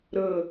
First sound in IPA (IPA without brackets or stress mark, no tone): ɾ